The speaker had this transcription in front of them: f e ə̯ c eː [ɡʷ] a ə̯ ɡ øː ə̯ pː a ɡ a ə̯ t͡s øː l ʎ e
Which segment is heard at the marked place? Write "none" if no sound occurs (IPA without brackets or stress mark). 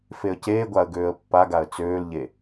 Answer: ɡʷ